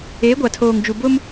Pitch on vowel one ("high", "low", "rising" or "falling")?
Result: rising